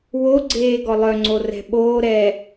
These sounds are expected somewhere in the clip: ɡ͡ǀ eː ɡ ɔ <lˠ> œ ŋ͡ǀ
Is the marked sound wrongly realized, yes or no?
no